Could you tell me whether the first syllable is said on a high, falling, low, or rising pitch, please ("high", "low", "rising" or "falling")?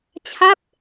falling